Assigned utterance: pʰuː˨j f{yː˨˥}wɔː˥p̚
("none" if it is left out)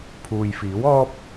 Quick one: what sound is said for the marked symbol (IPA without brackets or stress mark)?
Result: iː˨˥